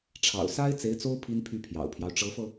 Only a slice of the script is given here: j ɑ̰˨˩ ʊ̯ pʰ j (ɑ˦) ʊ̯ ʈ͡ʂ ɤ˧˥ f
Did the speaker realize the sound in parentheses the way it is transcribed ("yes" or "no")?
yes